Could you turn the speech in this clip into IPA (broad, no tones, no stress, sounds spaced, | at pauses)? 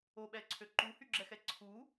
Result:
o ɓ ɛ ǀʰ ø ǃ u h y ɡ͡ǁ ɛ x ɛ ǀʰ u